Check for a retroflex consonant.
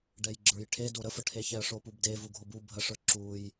present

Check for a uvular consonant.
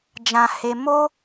absent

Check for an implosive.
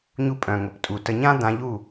absent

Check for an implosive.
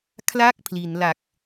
absent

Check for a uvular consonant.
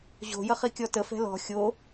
present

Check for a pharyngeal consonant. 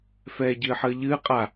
present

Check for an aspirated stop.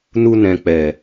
absent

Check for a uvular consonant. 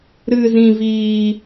absent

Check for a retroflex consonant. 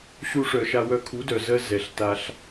present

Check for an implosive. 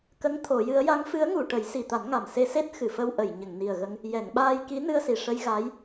present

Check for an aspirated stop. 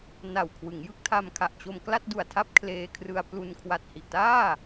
present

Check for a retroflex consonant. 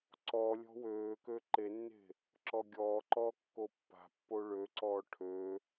present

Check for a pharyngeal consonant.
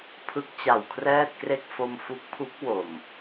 absent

